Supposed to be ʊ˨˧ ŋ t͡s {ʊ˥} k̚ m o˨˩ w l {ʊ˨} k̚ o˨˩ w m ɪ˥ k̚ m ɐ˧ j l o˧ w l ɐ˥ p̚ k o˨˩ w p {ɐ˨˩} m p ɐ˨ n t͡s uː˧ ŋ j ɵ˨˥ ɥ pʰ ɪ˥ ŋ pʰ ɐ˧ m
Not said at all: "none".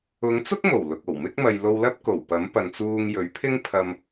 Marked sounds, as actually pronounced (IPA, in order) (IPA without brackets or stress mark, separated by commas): ʊ˥, ʊ˨, ɐ˨˥